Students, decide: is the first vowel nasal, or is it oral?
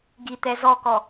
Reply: oral